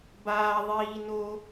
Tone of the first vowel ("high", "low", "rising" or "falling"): high